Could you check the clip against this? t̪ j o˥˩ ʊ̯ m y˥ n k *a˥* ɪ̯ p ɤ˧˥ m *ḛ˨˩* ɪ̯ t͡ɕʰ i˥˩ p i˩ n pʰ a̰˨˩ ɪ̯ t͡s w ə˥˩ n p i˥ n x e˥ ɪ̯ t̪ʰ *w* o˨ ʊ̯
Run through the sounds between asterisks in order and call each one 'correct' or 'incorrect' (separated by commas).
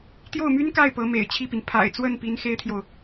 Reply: incorrect, correct, incorrect